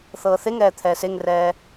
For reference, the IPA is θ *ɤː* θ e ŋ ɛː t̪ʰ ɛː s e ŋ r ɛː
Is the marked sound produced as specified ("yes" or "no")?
yes